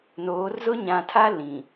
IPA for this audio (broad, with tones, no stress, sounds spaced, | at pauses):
n oː˨˦ r z ʊ˦ ɲ ã˨ tʰ a˦ l ĩ˨